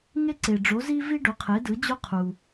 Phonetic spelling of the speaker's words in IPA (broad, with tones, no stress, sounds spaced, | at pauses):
ŋ e˥ ǀ e˩ ɖ͡ʐ o˩˥ z i˥ v i˥ ɖ o˩˥ qʰ e˩˥ d ɯ˩˥ d͡ʑ o˥ qʰ u˩